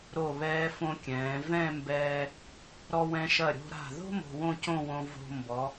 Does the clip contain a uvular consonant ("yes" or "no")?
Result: no